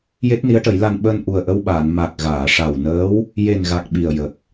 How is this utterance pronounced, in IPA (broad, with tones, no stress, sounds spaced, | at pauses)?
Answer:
j e˦˥ t̚ n i˧˥ ə̯ ʈ ə˨˩˦ j l a˧ n ɓ əː˧ n ʔ u˨˩ ə̯ ʔ ə˧ w ɓ aː˨˩˨ n m a˨˩ k̚ ɣ aː˨˩˨ ʂ a˨˩ w n əː˧˥ w | j e˨˩ n ɣ a˨˩ k̚ ɓ i˨˩ ə̯ j ə˨˩ k̚